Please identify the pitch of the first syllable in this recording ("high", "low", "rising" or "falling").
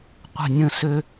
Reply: falling